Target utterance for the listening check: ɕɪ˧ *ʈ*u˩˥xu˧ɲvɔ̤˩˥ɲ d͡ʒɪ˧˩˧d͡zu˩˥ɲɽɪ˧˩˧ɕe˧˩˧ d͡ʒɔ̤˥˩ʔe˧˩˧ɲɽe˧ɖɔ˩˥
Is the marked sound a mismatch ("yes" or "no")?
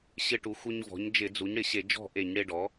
no